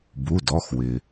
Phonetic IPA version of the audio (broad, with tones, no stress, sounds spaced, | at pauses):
b u˩˧˩ d ɔ˩˧˩ x w ɪ˩